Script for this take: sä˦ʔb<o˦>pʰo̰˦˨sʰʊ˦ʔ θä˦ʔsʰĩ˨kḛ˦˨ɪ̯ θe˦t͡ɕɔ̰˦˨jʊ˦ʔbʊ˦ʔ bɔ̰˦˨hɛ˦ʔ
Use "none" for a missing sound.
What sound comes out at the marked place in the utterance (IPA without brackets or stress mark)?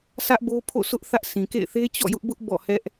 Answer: o˦